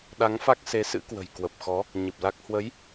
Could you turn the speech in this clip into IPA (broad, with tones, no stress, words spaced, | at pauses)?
ɗa˨˦ŋfa˦˥k̚se˨˦ sɨ̰˧˥kwə̤˨˩jkwə˨˩p̚xɔ˨˦ | ɲɨ˨˩p̚la˦˥k̚ hwə˨˦j